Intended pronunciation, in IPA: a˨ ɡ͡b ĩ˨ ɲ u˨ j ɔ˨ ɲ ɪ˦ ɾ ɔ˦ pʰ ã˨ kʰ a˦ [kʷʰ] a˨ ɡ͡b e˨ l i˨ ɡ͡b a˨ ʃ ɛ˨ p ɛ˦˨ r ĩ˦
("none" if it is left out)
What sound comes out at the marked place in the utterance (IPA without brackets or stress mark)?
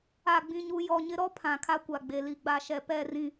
kʷ